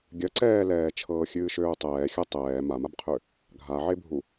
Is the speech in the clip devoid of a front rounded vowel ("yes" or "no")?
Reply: no